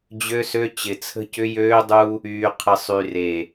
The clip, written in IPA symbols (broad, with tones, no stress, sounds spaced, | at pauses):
d͡ʑ ø˦ s ø˦ t͡ɕ ɪ˨ t͡sʰ ə̤˦ c ʏ˦ j øː˦ dˤ u˦ | yː˨ qʰ ə˨ sˤ y˨ r e˨